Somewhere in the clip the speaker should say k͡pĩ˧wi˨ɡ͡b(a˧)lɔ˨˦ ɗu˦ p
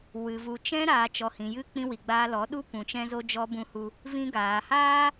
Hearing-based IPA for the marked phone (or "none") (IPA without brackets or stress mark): a˧